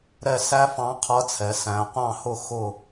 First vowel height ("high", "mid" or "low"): mid